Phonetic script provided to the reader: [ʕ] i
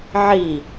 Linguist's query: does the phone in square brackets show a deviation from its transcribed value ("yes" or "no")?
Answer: no